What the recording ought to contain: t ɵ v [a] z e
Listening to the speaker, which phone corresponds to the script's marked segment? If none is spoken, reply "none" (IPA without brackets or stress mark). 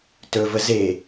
ə